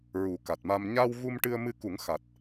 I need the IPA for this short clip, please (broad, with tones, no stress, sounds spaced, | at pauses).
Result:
ɹ u˨˩˦ k a˨˩ t̚ m a˧ m ɲ a˧ w ɣ u˧ m ʈ ɨ˧ ə̯ m ɨ˧ k u˨˩˦ ŋ x a˨˩ t̚